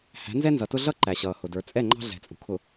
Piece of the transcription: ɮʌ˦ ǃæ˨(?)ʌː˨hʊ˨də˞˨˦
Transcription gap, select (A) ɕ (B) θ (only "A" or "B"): A